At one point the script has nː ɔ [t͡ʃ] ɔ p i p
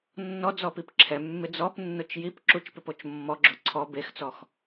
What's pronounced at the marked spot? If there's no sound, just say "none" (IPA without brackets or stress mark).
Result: d͡z